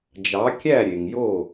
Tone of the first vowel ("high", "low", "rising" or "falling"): rising